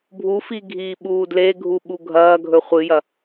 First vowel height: high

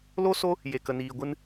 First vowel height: mid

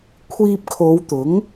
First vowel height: high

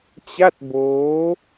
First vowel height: low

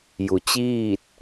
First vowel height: high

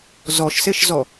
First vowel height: mid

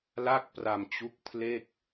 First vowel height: low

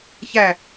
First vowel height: low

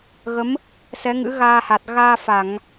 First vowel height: mid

